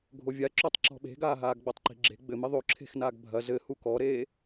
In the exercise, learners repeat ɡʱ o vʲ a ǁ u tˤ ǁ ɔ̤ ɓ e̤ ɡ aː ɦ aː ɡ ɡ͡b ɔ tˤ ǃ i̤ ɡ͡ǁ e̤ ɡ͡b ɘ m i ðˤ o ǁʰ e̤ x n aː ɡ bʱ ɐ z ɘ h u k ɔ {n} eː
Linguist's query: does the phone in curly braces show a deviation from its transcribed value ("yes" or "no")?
yes